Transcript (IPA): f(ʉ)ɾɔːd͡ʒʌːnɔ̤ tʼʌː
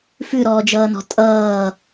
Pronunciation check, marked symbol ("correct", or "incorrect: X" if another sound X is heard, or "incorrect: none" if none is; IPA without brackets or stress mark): correct